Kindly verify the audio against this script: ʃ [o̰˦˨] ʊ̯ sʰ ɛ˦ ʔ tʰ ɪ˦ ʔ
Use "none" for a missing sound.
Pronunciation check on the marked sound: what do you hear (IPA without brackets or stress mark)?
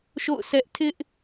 o̰˦˨